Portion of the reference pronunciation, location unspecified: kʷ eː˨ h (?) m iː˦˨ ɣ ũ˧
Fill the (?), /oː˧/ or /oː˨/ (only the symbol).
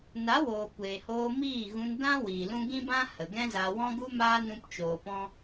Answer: oː˧